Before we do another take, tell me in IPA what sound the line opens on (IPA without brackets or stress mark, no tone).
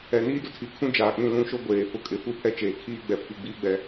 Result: ɛ